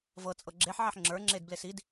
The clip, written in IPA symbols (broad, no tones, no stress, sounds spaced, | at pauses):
v ɤ t͡sʼ ɤ ɡ͡ǁ e ħ ʕ ɛ ħ ŋ͡ǁ ə˞ ŋ͡ǁ e d b l e s i d